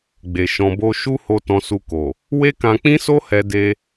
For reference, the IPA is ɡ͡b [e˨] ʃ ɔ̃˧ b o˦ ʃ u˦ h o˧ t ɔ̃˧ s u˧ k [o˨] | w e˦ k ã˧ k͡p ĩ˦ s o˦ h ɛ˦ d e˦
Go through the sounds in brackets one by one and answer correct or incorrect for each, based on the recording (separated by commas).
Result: correct, correct